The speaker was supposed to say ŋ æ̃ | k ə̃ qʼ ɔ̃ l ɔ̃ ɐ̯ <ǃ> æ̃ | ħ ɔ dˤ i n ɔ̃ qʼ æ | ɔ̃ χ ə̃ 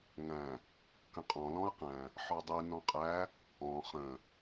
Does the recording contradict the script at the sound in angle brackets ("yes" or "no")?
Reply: yes